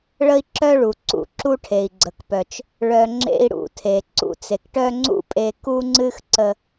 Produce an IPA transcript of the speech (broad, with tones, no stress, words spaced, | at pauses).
ɭə˥i̯ǁœ˥ɭu˩ ǀṵ˧ǁu˥ʈʰe˩i̯ ɡ͡ǀə˩kpœ˩t͡ʃ | ɭœ˧ŋ͡ǁḛ˥i̯ɽṵ˧tʰe˩ ǀṵ˧t͡se˩kʈœ˥ ŋ͡ǀṵ˥pʼe˧ ku˥ŋ͡ǀɨ˥x ǀə˧